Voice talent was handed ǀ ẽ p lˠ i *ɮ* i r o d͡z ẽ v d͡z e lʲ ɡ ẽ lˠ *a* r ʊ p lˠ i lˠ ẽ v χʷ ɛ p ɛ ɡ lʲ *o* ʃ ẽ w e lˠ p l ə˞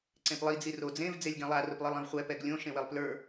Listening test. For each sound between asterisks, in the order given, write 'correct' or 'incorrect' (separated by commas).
incorrect, correct, incorrect